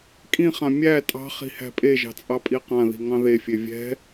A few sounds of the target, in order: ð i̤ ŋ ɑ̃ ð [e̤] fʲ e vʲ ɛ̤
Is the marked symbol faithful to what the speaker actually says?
no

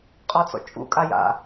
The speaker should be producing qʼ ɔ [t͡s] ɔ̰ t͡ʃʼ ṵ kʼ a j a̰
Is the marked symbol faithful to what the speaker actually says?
yes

